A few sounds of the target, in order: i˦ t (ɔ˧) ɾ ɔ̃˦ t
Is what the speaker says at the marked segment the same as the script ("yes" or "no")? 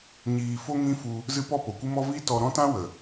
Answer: yes